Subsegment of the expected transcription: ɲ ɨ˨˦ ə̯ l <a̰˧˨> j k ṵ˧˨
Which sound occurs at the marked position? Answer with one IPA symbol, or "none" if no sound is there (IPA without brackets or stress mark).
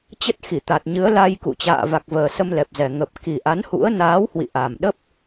a˧